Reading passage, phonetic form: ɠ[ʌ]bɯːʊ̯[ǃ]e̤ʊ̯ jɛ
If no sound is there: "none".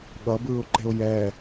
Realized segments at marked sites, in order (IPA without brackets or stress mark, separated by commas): ʌ, ǃ